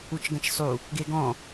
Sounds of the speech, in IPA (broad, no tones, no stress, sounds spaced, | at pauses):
u t͡ʃ ɡ ɐ̃ t͡ʃ sˤ u | ɡ e ɡ ɔ̃